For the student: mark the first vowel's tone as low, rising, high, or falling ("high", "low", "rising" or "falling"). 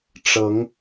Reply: rising